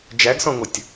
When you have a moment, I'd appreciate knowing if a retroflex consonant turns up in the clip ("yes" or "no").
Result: no